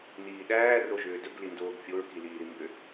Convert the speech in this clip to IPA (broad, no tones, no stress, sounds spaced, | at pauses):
n iː ɗ æː r o ʒ ʏː d ɵ ɡ l i n d oː ɡ fʲ o ɹ k i l iː ɾ i m b ʏ